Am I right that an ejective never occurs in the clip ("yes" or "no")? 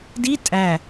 no